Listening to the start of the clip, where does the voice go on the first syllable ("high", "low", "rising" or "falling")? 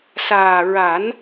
low